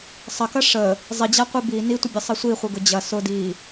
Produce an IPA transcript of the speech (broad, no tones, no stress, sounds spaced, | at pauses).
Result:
sˤ ɐ k ɐ ʂ ə | zˤ i d͡ʑ a qʷ i b i n i tʷ ə bʲ ə sˤ i sʷ i χʷ ɯ ɡ ʊ d͡ʑ ɐ s ʊ d i